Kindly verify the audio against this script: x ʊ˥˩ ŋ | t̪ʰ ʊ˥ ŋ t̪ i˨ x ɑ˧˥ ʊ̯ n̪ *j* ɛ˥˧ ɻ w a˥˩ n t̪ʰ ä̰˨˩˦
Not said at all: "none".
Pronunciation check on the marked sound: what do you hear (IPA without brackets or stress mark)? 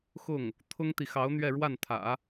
ɥ